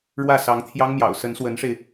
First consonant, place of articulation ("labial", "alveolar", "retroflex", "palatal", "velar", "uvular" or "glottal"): retroflex